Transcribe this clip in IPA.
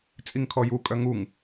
t͡sʼiŋkʰɔju kʼœŋuŋ

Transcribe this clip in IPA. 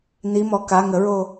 nimɔ ka ŋəɹo

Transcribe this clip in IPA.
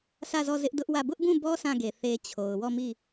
sä˦˨zɔ˦˨zɪ˦ʔ dʊ˦ʔwä˦˨ bʊ˦ʔbũ˦˨bɔ˦ sã˦˨ɡe˨ θe˦t͡ɕʰo˨ʊ̯ wɔ˦˨mi˦˨

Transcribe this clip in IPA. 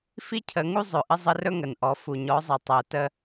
fi˦cʰə˨˦ŋu˦zˤɵ˨ ʔə˦zˤə˦rɵ˦ŋə˨n ʔɔ˨ fu˨ɲɔ˨˦zˤi˨ tˤə˨o̯tə˦

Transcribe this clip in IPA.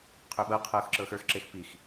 qʰɵɓɤ qʰɤxǁɤx ə˞x ǁexpix

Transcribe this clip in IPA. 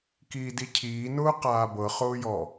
kiːdicʰiːnʊː qaːbɤχʊːjɔ

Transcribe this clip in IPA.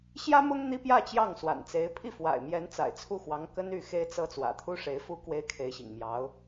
ɕjä˥mʊ˥ŋ n̪i˥pjä˥˧ t͡ɕjɑ˥˩ŋswa̰˨˩nt͡se˧˥ɪ̯ pʰi˥˩fwa̰˨˩ɪ̯mjɛ˧˥n t͡sa̰˨˩ɪ̯t͡sʰu˥˩xwɑ˧˥ŋ kə˥ny˥˩ xe˥ɪ̯t͡sɤ˥ t͡swä̰˨˩t̪ʰu˥ʂe˧˥ɪ̯fu˥ kwe˥ɪ̯kʰe˧˥ɪ̯ɕḭ˨˩ŋmjɑ˧˥ʊ̯

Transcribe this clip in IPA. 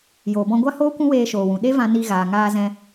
joː˨bɔ̃˧ɡʷa˦hoː˦ kʷũ˦weː˧ʃoː˨wũ˨ ɗe˦vã˧ ni˧ɣaː˨ŋaː˧ zɛ̃˧

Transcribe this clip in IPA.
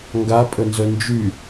ŋɡa pʼənzœnd͡ʒy

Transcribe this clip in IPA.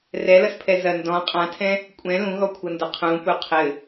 rɛlʌspʰɛ zɐ ndɔ̃ qʼãtʰɛ̃ | kʷʼɛ̃ lũɣɔkʷʰʌndɐ qʰũpu qʰɘ

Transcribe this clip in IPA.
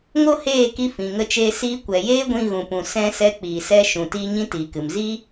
ŋo˦heː˦˨ki˧ fĩ˨ŋə˧t͡ʃeː˧ siː˧kʷɛ˨jeː˦ɡʷĩ˧ ɣũ˨pũ˨ sɛ̃˧ sɛ˧k͡piː˨sɛ˧ʃũ˨ tiː˧ ɲĩ˦tiː˨kɨ˨m zi˦

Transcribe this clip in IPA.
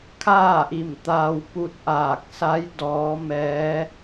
kʰaː˥˨ʔi˧˩m t̪aː˧w pu˧˥t̚ʔaː˧˩k̚ sa˧˥j dɔː˧˥ mɛː˧˥

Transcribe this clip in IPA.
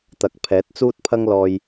t̪ɐ˨k̚ pʰɛː˨˥t̚t͡suː˥t̚ pʰɐ˥ŋlɔː˧j

